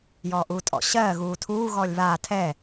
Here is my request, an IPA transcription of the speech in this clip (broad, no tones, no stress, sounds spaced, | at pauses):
j ɔː ʔ uː tʼ ɔ̰ ɕ ɜː ɣ uː tʰ uː ɣ ɔː lʲ β aː tʰ ɛ